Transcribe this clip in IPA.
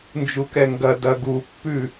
n d͡ʒ u k ɛ ŋ ɡ ɐ d ɐ ɡ u pː ʉ

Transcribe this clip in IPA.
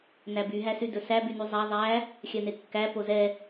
n æ b y ɦ æ s y d ɵ s æ b y n y zˤ æ ðˤ æ | xʲ ɛ n e kː æ p o z ɛ

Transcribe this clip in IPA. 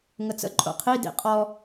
ŋ ə t͡s ə̰ ǃʼ o̰ qʰ i d ḭ qʼ ɔ

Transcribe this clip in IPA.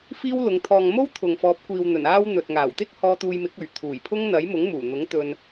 f iː˥ w l ʊ˨˧ ŋ t̪ʰ ɔː˨ ŋ m o˥ w t̪ʰ ʊ˨ ŋ f ɔː˨˥ p̚ kʷ iː˨ w n̪ ɵ˨˩ n aː˥ w n̪ ɵ˨ t̚ ŋ aː˨˩ w t̪ ɪ˥ k̚ h ɔː˧ t̪ uː˧ j m ɪ˨˥ k̚ ɵ˨˩ ɥ t̪ʰ uː˨˩ j pʰ ʊ˥ ŋ n̪ ɐ˨˥ j m ʊ˨˥ ŋ m uː˨˩ n̪ ʊ˨˥ ŋ t̪ ɵ˧ n

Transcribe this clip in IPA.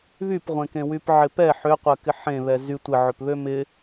β y p ʁʷ ẽ k ẽ w y p ʕ ɪ p ɛ ħ ʏ qʷ ɛ k ɪ ħ ẽ β ɛ z y tʷ ɪ ʕ ʏ p β ø m ɪ

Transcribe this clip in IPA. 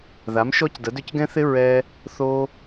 ð a˨˦ m ʃ ɔ˦ c d ə˨˦ d ʏ˦ c ɡ ɛ̃˦ θ ɪ˦ ɹ ɛ˦ | θ o˦

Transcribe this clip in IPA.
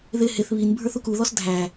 ð ɪ h ɪ θ β i n bʱ ə˞ θ u k u ð ɔ s dʱ æ

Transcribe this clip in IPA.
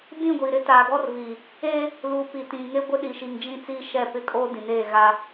d ĩ˦˨ ɡʷ i˨ ɾ ɪ˦ t a˨ ɡ ɔ˦ r v i˨ | e˦ | l u˨ p i˨ t ĩ˨ ŋ e˦ ɡʷ ɪ˦ ɗ i˨ ʃ i˨ ŋ d͡ʒ ĩ˦ t͡s iː˦ ʃ ɛ˦˨ p ɪ˦ kʼ oː˦ d ĩ˨ n eː˦˨ ɣ a˦

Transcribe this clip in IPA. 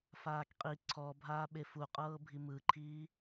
f aː k qʼ i ǀʰ ɔ bʱ aː ɓ e f u qʼ ɤː bʱ i m ɯ ǃʰ iː

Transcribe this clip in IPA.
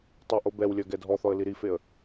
tˤ u ʔ o b ɛ w lʲ œ ɡ ɛ dʱ ɔ θ ɔ ə̯ l i ɾ i f e ə̯

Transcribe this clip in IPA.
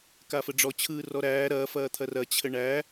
k a f ə ɖ͡ʐ ɔ t͡ɕʰ ɯː r ɔ ɾ æː ɾ ɐː f ɐː t̪ʰ ɐ r ɐ t͡ɕʰ ə ɳ æ

